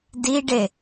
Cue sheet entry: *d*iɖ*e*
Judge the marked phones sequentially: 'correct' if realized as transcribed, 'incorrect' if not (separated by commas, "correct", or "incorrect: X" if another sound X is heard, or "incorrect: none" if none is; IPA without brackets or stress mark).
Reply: correct, correct